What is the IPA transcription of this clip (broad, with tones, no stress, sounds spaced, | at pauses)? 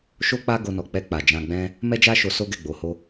ʃ o˦ k͡p a˦ ɡ o˧ n ɔ˨ k͡p ɛ˧ k͡p a˨ d͡ʒ ã˧ ɡ͡b ɛ̃˦ | m ɛ˦ d͡ʒ a˦ ʃ o˧ s o˦ ɡ ɛ˦˨ ɡ͡b o˧ h o˦